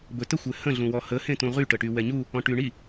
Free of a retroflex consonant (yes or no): no